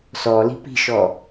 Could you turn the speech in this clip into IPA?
sɔli̤ pi̤ʃɔ

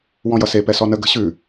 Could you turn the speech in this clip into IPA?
wɔ̃jʌse pɛsɔnə ɡə̤ɕʉ

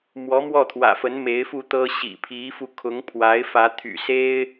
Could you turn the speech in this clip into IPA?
mwɔ˧˥mwɔ˥˩t̪ʰwä̰˨˩fə˧˥n me˧˥ɪ̯fu˥˩t̪ɤ˥ ɕḭ˨˩pʰi˧˥fu˧ kʰʊ˧˥ŋpʰwa˧˥ɪ̯fä˧˥ t̪ʰy̰˨˩se˥ɪ̯

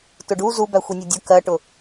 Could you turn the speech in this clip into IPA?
tʊɖu zu bæxʷinʲʌdʲʊ kɜʈʊ

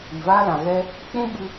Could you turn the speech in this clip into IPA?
i˨vaː˧lã˨ ɣɛ˧ | k͡pũ˦ɓɨ˧

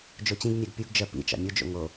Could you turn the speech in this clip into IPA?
d͡ʒot͡ɕĩɡnʲaɡ pʲuɡd͡ʒɜ pḭ t͡ʃɑ̰mʲod͡ʒo̰ ŋo

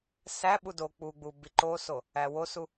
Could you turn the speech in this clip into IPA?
sæɓu do k͡puɡ͡bu biǃoso | æwosu

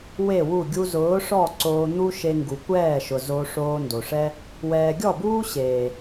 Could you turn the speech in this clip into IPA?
we˦˨wu˦˨ ɡʲu˧zʊː˨˦ʂɔ˦˨ ǀoː˧n̪u˦ʃe˧ ŋɡu˨kʷɛː˦˨ʃʊ˨ zo˧ ʂoː˧ndo˨ʂɛ˦ | wɛː˨ɡʲɔ˦˨buː˦ ɕeː˨

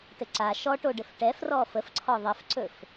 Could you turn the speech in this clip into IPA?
tɘǀa ʃɔʈoɖɘf ʈɛfrɔ fəfǀʰɔ ðˤəfǀɵf

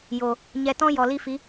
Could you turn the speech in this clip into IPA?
jo˨ | ɲɛ˧tɔ̃˦jɔ˨ li˦fi˨˦

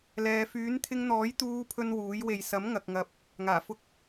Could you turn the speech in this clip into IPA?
lɛː˨fyː˨˥n t̪ʰɪ˧ŋn̪ɔː˨˥jt̪uː˧ pʰɵ˥nwuː˨˥j we˨jsɐ˨˥mŋɐ˨k̚ŋɐ˨˥p̚ | ŋaː˨˩fʊ˧k̚

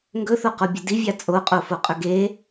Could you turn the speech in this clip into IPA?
ŋɡɵθoqobʲɵ divʲa t͡sʼoqʼofoqʼɵ ɡe

